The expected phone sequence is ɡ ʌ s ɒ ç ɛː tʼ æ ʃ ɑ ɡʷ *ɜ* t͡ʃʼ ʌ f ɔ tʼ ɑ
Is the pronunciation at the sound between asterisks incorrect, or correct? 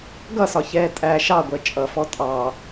correct